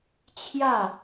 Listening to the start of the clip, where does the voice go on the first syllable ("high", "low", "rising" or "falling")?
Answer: falling